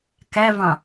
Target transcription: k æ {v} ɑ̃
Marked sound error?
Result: no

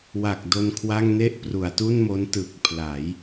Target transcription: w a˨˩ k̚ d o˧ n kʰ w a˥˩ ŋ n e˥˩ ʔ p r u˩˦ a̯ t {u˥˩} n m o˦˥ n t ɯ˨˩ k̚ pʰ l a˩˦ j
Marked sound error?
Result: no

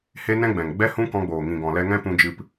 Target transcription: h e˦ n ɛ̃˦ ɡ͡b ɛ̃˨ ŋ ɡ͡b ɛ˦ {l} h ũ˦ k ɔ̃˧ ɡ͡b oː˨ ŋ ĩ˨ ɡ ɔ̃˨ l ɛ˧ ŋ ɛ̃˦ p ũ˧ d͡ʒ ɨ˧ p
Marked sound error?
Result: yes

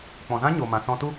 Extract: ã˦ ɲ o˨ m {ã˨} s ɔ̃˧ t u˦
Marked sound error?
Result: no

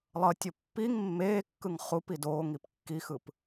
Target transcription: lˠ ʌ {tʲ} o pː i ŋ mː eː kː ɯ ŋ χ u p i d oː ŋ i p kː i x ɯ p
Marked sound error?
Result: no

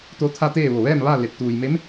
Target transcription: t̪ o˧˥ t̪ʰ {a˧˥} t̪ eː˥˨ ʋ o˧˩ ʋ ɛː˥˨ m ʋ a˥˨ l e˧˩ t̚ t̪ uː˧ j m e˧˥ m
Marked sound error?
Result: yes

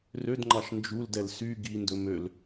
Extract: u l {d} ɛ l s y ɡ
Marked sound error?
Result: no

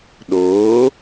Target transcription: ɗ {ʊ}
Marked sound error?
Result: yes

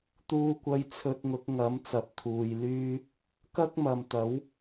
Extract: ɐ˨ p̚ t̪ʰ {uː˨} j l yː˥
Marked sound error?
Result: no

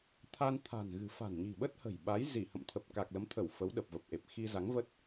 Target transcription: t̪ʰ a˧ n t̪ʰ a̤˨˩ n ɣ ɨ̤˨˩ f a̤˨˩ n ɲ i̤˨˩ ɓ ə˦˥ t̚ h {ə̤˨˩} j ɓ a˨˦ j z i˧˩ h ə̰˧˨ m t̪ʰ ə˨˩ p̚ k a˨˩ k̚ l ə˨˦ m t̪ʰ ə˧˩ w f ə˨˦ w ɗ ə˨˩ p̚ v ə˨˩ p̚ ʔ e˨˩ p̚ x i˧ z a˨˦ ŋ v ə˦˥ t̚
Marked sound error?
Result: no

